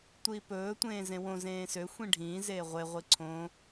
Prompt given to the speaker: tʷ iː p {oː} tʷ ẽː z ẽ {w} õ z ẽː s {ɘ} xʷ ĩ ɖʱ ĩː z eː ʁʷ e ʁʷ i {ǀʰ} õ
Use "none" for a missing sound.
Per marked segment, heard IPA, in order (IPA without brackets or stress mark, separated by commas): ɵː, w, ø, ǀʰ